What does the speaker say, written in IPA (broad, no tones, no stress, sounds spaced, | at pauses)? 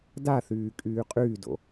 d a θ yː kʼ yː qʼ yː d o̰